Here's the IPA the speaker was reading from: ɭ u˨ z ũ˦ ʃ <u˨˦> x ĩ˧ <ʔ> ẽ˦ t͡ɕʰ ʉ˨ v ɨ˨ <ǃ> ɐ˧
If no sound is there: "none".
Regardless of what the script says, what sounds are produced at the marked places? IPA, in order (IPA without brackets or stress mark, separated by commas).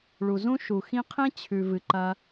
u˨, qʰ, ǃ